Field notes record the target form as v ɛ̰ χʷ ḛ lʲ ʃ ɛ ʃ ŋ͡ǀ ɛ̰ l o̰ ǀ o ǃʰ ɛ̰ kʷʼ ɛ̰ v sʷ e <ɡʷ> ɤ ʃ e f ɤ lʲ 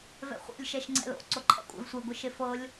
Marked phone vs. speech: correct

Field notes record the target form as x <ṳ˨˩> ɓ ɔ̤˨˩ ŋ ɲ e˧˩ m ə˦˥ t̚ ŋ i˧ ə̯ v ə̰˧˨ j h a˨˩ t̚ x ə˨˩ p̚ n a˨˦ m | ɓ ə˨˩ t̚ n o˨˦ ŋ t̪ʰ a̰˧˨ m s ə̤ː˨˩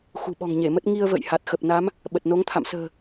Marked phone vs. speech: correct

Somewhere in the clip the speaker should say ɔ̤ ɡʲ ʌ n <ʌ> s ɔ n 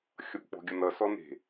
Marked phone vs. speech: correct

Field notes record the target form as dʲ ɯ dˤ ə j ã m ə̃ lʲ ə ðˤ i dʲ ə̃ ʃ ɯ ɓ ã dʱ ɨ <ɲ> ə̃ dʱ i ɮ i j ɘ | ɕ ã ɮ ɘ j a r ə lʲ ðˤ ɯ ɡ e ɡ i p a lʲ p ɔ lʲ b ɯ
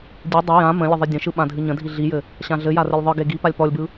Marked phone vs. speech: correct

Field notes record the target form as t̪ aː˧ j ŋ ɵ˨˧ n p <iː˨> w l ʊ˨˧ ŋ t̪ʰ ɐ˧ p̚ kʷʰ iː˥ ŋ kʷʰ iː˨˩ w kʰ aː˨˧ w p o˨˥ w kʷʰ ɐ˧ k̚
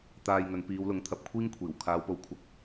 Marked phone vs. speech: incorrect: iː˨˧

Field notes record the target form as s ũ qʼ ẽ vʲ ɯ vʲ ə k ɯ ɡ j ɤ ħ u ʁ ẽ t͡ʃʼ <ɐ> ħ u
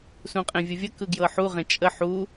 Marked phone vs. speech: incorrect: ə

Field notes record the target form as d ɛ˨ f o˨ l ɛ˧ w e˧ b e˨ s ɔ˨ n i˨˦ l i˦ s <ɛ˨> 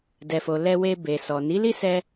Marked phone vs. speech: incorrect: ɛ˧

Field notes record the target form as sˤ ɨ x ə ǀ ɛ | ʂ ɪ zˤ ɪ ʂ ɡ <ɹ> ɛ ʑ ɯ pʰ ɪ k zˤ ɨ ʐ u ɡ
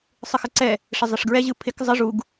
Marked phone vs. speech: correct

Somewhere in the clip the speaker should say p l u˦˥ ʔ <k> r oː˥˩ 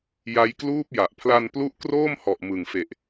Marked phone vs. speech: correct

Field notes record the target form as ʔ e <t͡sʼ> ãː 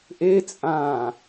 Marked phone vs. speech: correct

